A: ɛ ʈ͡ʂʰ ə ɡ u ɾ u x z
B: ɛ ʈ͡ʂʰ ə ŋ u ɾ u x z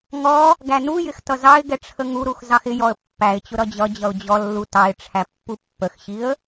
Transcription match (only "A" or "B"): B